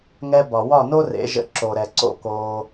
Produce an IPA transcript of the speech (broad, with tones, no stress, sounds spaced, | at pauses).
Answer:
ŋ ɛ˧ b ɒ˩ w ɒ˥˩ n o˥ r ḛ˩˥ ʒ ə̰˧ ǁ o˩ ɾ ɛ˩ ǀ o̰˧ k oː˧